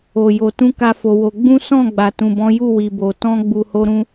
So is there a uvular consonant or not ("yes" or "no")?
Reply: no